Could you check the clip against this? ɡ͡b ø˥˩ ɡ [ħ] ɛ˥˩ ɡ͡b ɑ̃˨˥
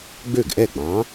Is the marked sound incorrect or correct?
incorrect